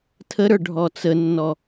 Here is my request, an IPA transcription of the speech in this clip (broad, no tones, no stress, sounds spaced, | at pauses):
tʰ ə ɾ ə˞ ɖʱ ɔ t͡s ə nː ɔ